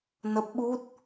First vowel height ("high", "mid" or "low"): mid